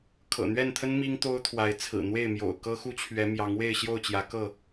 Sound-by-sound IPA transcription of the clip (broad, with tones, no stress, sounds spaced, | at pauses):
kʰ ɤ̰˨˩ n̪ ɥ ɛ˥˨ n t̪ʰ ə˦ n m i˦ ŋ t̪ o˦ ʊ̯ t̪ʰ w a˨˦ ɪ̯ t͡sʰ ɹ̩˨˩ n̪ w e˥˨ ɪ̯ m j o̰˨˩ ʊ̯ k ɤ˦ x u˦ t͡ɕʰ ɥ ɛ˨˦ m j ɑ˨˦ ŋ w e˥˨ ɪ̯ ɕ j o˥˨ ʊ̯ t͡ɕ j ä˨˦ k ɤ˥˨